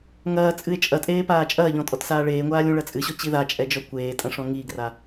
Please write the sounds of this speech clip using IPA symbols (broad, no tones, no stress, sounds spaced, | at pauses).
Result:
ŋ ɐː t͡sʼ ɨ e̯ t͡ʃʼ ɐ tʼ eː p aː t͡ʃʼ ɐː ʎ ɔ̃ tʼ ɔ t s aː ɭ eː ŋʷ aː lʲ ũ ɭ ɐ t͡sʼ ɨ ɕ ɔ t͡ɕ i ð a t͡ʃʼ ɛ d͡ʒ ɔ kʷ eː tʼ ɐ̃ ʂ ɔ̃ ŋ i ɡ r a